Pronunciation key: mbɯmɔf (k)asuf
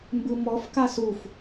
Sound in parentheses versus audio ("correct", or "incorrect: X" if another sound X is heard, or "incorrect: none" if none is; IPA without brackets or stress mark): correct